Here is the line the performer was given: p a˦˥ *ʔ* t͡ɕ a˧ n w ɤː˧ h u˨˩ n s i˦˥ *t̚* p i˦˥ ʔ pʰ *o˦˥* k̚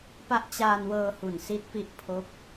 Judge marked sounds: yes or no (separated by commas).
yes, yes, yes